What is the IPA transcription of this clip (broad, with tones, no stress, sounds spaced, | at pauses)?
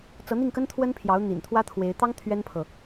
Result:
t͡s ɤ˧˥ n̪ i˥˩ ŋ k ə˥ n t̪ʰ w ə˥ n pʰ j ɑ˧˥ ʊ̯ n̪ ḭ˨˩ n t̪ʰ w ä˥ t̪ʰ w e˧˥ ɪ̯ t̪ ɑ˥ ŋ t̪ʰ ɥ ɛ˥ n pʰ ɤ˨